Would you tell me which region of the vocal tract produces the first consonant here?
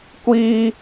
velum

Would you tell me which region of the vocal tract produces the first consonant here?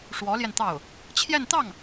retroflex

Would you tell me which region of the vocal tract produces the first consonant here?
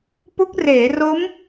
lips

